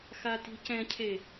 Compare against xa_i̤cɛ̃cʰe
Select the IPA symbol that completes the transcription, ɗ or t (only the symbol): t